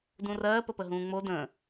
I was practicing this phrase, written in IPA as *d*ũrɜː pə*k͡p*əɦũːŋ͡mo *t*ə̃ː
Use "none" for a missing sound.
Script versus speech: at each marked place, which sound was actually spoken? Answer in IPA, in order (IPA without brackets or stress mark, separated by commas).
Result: d, p, d